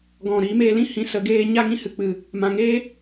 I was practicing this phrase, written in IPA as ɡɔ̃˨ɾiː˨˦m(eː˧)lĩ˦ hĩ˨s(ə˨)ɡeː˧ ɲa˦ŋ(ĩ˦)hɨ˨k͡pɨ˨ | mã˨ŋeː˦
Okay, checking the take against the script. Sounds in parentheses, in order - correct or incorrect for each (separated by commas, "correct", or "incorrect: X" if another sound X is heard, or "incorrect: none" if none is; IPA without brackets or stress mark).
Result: correct, correct, correct